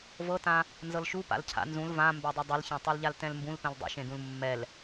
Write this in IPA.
v ɤ t ã | n z ɤ l ʃ u p a̰ l cʰ a̰ n z ũ l v ã m b ɛ dˤ ɛ dˤ ɯ l ç ã tˤ ɤ l ʎ a l t ɛ̃ l m b ũ l p ɛ̃ l dˤ ṵ ʃ ẽ d ũ l mː ɛ l

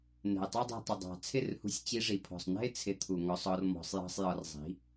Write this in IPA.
n ɛ̤˨ ɪ̯ tˤ ɑ˦ dˤ ɛ̤˧ tˤ ɪ˨ dˤ ɑ̤˨ t͡sʰ ɪ˦˨ r h ṳ˧ sʲ t͡ɕ i˧ ʐ i˨ pʰ ɔ̤˨ sˤ n ɛ̤˦ ɪ̯ t͡sʰ ɪ˧ t̪ʰ u˨ ŋ ɔ˧ sˤ ɔ˧ r m ɔ̤˧ sˤ j ɑ̤˦ sˤ j ɒ˧ r zˤ i̤˨˦

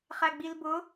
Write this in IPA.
χ æ ɡ͡b i l b ʊ

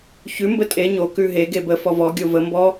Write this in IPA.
ç ʉ m b ə tʼ e ɲ o k ʉ ɦ e ɡ e b ə f ɔ v ɔ ɡʲ o v ə m b ɔ

